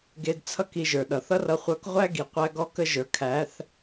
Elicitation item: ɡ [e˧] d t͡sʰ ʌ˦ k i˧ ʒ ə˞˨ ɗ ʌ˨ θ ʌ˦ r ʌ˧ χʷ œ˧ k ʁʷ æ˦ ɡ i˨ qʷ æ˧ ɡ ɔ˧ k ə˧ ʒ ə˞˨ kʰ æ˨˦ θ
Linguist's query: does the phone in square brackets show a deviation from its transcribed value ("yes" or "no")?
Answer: no